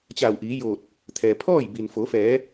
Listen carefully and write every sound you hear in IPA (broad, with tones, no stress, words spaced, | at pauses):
t͡ɕa˧˩wʔiː˩˧joː˧˩t̚ | t̪ʰɛː˩pʰɔː˥˨j bi˩nfo˩˧fɛː˩˧